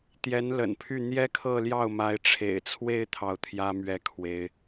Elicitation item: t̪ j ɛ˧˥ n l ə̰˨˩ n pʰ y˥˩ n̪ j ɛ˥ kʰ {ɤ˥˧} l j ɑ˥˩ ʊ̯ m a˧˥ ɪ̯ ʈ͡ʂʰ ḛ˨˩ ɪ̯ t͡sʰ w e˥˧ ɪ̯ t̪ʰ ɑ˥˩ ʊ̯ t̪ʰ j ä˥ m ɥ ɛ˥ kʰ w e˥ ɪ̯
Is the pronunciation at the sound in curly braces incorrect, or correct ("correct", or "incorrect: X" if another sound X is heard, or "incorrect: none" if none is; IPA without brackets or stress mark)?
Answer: correct